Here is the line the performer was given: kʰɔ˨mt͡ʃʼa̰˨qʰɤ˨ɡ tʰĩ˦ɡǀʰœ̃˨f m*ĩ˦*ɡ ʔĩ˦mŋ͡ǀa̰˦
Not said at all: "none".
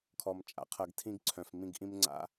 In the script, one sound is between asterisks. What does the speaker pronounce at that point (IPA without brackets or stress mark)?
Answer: ĩ˦